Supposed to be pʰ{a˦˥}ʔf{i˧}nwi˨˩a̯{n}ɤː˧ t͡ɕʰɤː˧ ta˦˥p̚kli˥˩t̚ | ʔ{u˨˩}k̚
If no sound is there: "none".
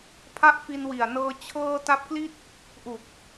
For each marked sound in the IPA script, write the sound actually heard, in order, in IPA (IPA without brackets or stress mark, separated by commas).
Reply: a˦˥, i˧, n, u˨˩